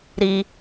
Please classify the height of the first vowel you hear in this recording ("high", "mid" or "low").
high